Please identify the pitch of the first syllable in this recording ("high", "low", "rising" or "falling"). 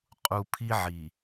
low